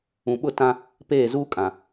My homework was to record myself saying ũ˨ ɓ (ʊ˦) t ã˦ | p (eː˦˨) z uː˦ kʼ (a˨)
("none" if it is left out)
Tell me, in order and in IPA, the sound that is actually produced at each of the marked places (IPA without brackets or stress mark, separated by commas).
ʊ˦, eː˦˨, ã˨